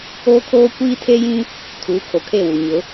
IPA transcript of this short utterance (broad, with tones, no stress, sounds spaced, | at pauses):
oː˦ kʰ oː˦ kʷ iː˦ tʰ e˦ j ĩ˦ | tʰ u˨˦ kʰ o˨ kʰ e˦˨ w u˨ ɲ ʊ˨˦